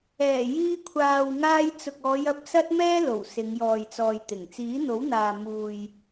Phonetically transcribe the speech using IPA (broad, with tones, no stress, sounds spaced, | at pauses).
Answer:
ɛː˨˩ j iː˧ kʷʰ aː˨ w ŋ aː˧ j t͡s ʊ˨ k̚ ɔː˨˧ j ɐ˧ p̚ s ɐ˥ t̚ m ɛː˥ l o˨˩ w s ɪ˨˧ ŋ j ɔː˨ j t͡s ɔː˨ j t̪ ɪ˨˩ ŋ t͡s iː˨˥ n̪ o˨˥ w n̪ aː˨ m uː˨ j